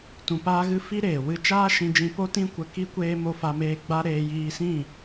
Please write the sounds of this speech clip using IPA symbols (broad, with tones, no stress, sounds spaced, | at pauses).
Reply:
t ũ˨ p aː˧ ɣ ɨ˧ f i˦ ɾ eː˨ w ɨ˦˨ t͡ʃ aː˦ ʃ ĩ˧ d͡ʒ ĩ˧ p o˦ t ĩ˦ kʷ ə˧ k i˦ kʷ eː˦ m o˧ f a˧ m eː˧ ɡ͡b a˦ ɾ eː˧ j iː˧ s ĩ˦˨